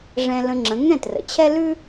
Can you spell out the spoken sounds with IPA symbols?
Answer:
ʐ ɛ̃˧ l ə̃˧ ŋ͡ǁ ə̃˩˥ ŋ ɛ̃˥˩ t r ə̰˩ t͡ɕʰ ɛ˥ l ʉ˥

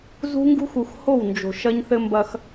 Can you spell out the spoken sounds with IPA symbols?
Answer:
z ṳ˦ ŋ ɡ ṳ˦ x u˨ x h o˦˨ w n d͡ʒ o̤˨ ʃ ɐ˦ ɲ θ ɘ˦ m b ɐ˦ x

